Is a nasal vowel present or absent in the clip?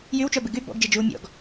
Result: absent